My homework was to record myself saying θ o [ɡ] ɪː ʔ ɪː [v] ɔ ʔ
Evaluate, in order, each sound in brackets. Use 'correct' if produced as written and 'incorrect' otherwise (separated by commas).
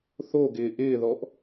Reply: correct, incorrect